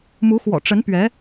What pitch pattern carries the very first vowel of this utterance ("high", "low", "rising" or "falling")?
rising